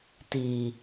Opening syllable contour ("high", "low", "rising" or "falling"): low